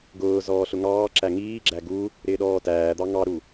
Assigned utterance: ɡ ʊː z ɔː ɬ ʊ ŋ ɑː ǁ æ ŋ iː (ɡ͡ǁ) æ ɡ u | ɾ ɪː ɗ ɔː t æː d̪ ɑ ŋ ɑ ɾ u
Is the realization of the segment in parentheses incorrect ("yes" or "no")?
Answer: no